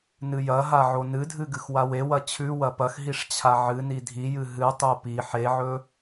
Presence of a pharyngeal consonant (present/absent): present